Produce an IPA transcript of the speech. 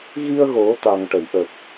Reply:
ɣ i˧ ə̯ ɣ o˨˩˦ t̪ a˨˩ ŋ ʈ ə˨˩˨ j ʔ ə˨˩ k̚

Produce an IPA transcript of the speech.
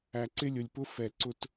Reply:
æ˨ ǀ ɪ˦ lʲ ʊ˨ lʲ p ʊ˦ f ɛ˨ ǀ ʊ˨ t

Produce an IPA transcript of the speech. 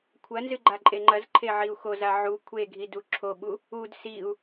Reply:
kʷʰ ɐ n z ɨ ɡ͡ǃ a ǃʼ e ŋ͡ǃ ɐ z ǃʰ e ʕ i u̯ x o z a ʕ u kʷʰ e ɡʱ i d u ǁʰ o ɓ u | u d s i u̯

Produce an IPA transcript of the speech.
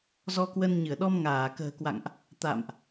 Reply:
z ɔ˧ k w ə˧ n ɲ ɨ˧˩ ə̯ ɗ ɔ˧ m ŋ aː˧˩ k ə̤ː˨˩ k w a̰˧˨ ŋ ʔ | t̪ a̰˧˨ m ʔ

